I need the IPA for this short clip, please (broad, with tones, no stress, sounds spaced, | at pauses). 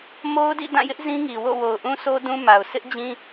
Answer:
m o˦ ʊ̯ d ḭ˦˨ d ã˦˨ j ɪ˦ ʔ z ĩ˦ ŋ i˨ w o̰˦˨ w o˨ ʊ̯ ʔ ũ˦ sʰ o˦ d ũ˦ m a˨ ʊ̯ sʰ ɪ˦ ʔ d͡ʑ ĩ˦